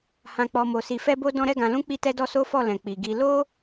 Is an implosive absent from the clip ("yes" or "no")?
yes